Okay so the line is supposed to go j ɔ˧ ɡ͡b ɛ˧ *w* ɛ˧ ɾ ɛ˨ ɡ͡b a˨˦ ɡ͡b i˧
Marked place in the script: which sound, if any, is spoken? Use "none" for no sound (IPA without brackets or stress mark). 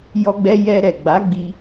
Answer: j